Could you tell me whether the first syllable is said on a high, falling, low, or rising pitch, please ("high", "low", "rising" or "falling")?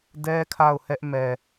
high